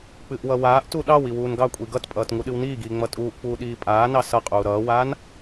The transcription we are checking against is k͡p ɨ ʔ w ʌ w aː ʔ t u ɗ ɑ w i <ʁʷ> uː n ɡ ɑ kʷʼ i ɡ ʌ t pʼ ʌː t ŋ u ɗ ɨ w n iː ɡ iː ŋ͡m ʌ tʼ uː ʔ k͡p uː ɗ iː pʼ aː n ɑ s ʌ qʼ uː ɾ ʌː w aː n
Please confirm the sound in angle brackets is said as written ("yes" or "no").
no